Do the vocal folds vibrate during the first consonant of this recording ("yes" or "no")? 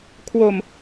no